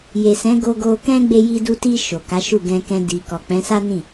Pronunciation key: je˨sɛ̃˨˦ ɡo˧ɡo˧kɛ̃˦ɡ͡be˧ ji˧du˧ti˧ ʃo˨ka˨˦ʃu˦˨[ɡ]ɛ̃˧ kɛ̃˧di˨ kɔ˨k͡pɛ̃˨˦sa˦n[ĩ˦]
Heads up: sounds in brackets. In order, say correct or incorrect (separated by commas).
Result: correct, incorrect